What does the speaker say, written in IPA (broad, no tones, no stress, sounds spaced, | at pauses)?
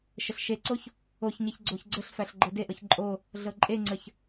ʃ ə ɬ ʃ e ǀ o ç | o ç ɲ e ç ɡ͡ǀ o ç ɡ͡ǀ ə ɬ f æ ɬ ɡ͡ǃ ɤ d e ʔ ɤ ç ǃʼ o | ɮ ɤ ǃʼ e ŋ͡ǀ ə ç